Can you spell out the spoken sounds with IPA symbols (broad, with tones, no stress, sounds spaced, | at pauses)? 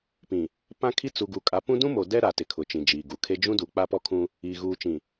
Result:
p ĩ˨ | p ã˦ kʰ i˦ t͡s u˨ ɡ u˨ kʼ a˨˦ p ũ˦ d ũ˦ m o˨ d ɛ˦ ɾ a˨ t ɪ˨ kʰ ʊ˨ t͡ʃ ĩ˨ d͡ʒ iː˨ ɡ u˨ kʰ e˦ d͡ʒ ũ˦ d u˨ k͡p a˦ p ɔ˦ kʰ ũ˦ | iː˨ ɣ uː˨ t͡ʃ ĩ˨